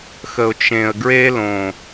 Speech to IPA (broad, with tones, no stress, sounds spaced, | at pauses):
x ə˨ ʊ̯ t͡ʃ ẽ˨ ə̯ ɡ ɹ e˦ l õ˨